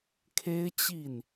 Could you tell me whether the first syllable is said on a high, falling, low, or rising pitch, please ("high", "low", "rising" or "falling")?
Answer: high